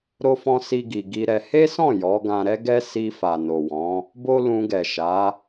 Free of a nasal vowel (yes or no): no